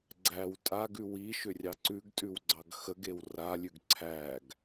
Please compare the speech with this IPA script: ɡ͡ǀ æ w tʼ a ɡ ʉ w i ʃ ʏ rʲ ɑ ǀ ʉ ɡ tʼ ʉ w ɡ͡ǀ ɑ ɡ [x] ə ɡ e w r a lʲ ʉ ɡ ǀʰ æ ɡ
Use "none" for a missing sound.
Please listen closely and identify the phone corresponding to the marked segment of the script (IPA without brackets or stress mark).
x